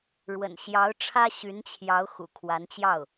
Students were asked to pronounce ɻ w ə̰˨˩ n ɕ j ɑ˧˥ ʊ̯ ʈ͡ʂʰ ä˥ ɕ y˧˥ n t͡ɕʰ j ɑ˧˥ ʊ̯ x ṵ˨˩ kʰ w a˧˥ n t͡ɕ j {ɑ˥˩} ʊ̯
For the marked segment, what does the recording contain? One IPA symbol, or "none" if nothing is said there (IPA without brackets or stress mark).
ɑ˥˩